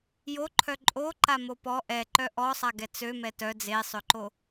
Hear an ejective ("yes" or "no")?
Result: yes